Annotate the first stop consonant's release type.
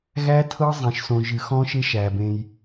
aspirated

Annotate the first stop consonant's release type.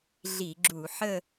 click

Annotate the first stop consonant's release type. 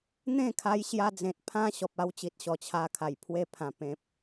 aspirated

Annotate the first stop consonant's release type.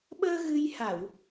implosive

